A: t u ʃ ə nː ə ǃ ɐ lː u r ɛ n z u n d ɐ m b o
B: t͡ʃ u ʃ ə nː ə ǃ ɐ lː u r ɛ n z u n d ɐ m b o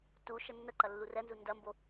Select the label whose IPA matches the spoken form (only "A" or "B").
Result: A